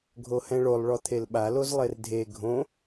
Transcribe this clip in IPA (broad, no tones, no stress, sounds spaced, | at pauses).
ɡʱ o h ɛ̃ ɭ o lˠ ɭ ɔ t̪ʰ e l ɓ a l o z lˠ e r dʱ e ɡʱ õ